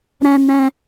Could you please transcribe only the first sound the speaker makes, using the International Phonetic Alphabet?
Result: ɾ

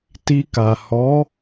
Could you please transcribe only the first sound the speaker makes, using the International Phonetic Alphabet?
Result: t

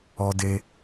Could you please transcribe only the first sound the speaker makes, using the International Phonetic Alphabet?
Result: ɔ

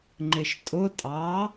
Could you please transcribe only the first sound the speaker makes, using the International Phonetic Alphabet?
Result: ŋ͡ǃ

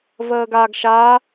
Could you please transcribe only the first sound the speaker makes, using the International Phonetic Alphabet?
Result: v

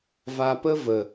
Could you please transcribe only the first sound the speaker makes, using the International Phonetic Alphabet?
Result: v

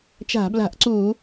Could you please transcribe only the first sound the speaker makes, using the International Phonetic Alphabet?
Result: t͡ʃ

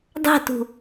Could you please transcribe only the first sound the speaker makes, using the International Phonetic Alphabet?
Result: dˤ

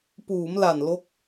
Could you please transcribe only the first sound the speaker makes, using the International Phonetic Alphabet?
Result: p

